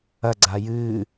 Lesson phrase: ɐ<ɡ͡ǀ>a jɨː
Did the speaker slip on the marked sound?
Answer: no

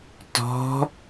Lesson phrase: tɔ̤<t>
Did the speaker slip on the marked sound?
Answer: yes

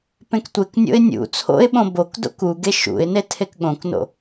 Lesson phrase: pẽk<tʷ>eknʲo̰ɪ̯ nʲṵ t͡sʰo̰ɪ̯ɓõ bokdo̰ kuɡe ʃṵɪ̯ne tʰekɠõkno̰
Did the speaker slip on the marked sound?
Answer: no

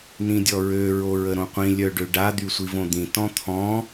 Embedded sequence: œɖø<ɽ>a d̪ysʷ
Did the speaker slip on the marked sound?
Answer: yes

